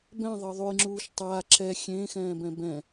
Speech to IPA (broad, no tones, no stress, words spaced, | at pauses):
bɛ̃ðˤɤ ðˤujŋ͡ǁuːʃ tˤaː ǁɛ xʲẽːxɛ̃ːbɛ̃ bɛ̃